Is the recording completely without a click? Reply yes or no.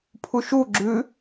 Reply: no